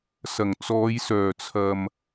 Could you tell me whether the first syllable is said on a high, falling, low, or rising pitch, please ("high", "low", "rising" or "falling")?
low